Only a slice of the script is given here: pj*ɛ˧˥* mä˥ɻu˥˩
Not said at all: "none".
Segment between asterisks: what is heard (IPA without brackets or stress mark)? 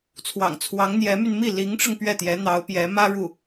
ɛ˧˥